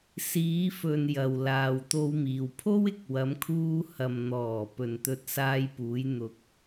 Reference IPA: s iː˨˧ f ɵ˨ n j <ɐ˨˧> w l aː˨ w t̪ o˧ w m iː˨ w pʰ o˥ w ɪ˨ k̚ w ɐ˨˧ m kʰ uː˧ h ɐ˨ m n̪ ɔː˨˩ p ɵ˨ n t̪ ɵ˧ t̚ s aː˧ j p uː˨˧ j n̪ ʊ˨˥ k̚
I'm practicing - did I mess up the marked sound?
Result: yes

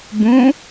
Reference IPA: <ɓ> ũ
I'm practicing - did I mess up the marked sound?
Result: yes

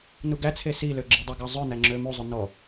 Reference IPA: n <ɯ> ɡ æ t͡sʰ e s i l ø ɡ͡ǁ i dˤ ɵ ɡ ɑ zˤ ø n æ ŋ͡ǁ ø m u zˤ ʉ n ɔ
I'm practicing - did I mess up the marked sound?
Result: yes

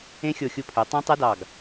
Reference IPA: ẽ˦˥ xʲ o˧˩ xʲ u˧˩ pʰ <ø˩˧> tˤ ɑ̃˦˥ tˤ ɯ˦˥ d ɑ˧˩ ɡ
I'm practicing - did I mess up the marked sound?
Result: no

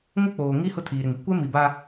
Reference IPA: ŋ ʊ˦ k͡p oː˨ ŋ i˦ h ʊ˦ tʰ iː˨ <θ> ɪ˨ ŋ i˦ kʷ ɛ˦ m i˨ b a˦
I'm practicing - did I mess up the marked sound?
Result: yes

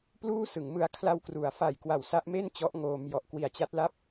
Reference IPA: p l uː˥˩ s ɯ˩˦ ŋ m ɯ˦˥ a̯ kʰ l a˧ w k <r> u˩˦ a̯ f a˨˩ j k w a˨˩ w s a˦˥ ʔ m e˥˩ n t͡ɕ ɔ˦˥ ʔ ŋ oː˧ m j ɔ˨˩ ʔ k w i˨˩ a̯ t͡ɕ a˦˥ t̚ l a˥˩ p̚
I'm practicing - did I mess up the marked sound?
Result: no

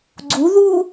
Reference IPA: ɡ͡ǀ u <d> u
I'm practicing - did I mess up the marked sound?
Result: yes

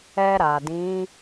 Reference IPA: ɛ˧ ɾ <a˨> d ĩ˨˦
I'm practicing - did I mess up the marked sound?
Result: no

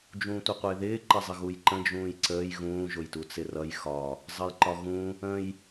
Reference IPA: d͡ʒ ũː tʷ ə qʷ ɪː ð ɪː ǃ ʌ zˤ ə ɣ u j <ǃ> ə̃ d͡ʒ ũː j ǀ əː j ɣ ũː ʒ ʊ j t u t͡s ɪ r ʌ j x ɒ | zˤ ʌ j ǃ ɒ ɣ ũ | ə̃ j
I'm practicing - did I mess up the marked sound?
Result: no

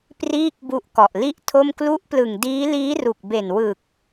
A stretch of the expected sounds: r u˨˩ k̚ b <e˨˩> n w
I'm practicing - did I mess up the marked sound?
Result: no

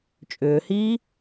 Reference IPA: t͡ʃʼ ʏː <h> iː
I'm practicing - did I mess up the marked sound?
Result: no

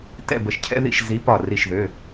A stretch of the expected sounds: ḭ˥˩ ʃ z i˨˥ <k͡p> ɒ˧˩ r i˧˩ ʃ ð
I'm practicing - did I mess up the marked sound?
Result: yes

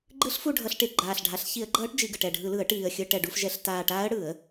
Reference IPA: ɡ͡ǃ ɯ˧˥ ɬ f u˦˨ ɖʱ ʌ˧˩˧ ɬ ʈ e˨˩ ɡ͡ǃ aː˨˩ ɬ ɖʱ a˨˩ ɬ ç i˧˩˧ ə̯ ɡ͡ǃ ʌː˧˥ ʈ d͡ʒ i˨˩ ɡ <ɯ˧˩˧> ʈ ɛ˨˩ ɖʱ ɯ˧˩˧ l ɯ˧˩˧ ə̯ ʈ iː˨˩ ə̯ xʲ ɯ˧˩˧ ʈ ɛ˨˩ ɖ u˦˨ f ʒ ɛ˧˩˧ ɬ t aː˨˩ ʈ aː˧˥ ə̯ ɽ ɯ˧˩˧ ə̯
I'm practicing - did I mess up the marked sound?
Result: yes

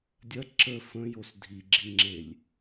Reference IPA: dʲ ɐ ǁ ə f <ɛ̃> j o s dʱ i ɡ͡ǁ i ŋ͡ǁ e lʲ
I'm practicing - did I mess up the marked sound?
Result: yes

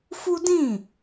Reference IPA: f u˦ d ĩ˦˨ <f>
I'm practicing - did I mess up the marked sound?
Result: yes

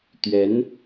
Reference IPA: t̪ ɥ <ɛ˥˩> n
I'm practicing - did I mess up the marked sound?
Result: yes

